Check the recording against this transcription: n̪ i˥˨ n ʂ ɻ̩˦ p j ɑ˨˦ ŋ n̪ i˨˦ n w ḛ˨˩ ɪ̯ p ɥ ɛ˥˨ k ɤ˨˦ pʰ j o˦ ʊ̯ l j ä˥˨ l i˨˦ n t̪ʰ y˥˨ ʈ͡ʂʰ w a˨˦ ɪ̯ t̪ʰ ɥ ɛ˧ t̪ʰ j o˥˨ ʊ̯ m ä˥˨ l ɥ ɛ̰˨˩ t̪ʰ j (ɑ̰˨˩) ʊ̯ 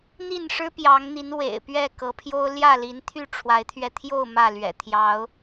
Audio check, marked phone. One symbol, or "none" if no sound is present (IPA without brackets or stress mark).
ɑ˨˦